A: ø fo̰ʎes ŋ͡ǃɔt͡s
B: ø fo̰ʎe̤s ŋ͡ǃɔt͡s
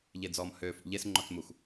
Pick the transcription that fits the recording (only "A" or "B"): A